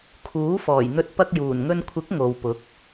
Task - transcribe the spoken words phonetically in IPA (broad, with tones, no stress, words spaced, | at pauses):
kʰuː˨˥fɔː˨˩jn̪ɵ˧t̚ pɐ˧k̚juː˨˩nŋɵ˧nkʷʰɪ˨˥k̚ ŋo˨wpʊ˨˥k̚